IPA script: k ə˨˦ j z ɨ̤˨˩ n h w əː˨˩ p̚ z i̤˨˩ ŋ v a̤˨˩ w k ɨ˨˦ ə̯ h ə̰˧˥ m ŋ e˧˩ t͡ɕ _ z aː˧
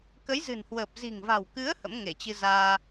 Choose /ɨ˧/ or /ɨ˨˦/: ɨ˧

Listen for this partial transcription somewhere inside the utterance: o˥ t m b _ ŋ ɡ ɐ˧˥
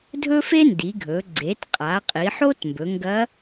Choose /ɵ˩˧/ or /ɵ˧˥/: ɵ˩˧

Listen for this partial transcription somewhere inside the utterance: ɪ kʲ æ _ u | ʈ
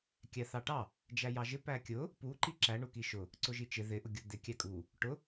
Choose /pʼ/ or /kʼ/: kʼ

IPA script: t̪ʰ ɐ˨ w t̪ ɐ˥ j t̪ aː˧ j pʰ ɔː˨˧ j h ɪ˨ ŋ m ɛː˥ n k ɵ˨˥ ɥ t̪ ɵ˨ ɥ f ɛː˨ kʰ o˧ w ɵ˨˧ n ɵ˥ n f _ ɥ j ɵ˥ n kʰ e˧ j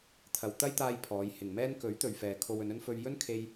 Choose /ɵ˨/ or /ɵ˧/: ɵ˧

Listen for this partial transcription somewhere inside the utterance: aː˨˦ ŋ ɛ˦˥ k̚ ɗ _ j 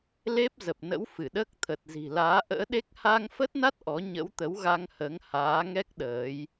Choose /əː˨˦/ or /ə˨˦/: əː˨˦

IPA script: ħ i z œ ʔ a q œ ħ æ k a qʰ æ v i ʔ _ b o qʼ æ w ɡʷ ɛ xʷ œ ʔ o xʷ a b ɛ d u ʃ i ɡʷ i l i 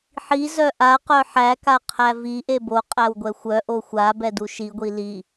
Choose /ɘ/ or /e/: e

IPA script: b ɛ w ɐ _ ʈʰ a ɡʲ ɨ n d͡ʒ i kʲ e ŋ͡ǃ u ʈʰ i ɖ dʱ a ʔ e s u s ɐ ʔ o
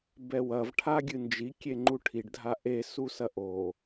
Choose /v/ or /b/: v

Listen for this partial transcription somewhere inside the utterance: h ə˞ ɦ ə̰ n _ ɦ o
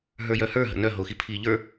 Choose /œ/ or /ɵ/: œ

